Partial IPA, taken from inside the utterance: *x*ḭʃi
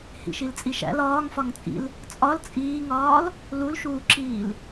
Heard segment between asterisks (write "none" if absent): h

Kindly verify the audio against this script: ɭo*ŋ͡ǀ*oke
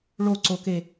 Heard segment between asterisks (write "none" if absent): ǀ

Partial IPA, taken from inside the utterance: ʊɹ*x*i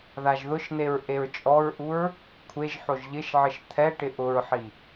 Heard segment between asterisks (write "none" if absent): ħ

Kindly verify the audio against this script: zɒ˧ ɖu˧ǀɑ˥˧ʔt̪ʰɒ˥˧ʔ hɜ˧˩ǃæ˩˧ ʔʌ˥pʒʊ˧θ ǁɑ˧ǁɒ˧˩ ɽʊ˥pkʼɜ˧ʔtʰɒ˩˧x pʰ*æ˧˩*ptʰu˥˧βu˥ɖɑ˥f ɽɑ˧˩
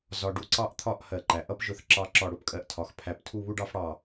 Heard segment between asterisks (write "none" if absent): æ˧˩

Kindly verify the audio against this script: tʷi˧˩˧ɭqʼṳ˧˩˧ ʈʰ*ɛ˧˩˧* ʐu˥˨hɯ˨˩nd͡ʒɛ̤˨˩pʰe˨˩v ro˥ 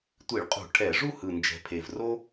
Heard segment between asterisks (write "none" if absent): ɛ˧˩˧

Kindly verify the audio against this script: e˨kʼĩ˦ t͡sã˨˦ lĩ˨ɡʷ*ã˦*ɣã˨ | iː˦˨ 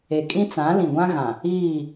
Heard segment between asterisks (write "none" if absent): ã˦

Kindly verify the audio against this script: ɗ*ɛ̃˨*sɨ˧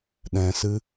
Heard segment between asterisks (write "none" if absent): ɛ̃˨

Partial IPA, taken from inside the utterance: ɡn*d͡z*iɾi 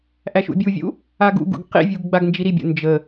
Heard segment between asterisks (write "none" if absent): d͡ʒ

